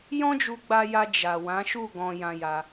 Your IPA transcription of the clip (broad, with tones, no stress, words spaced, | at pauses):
jɔ̃˦d͡ʒu˧ɡ͡ba˧ja˧ d͡ʒa˨wã˨˦ʃu˦˨ ɡɔ̃˧jã˧ja˧